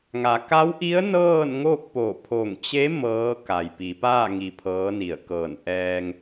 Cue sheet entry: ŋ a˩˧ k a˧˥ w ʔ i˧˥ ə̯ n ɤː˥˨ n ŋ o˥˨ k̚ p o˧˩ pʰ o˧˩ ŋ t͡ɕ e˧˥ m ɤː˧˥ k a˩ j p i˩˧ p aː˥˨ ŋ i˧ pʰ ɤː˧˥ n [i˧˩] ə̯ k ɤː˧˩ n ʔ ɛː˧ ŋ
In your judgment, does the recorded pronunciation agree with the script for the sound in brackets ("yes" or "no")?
yes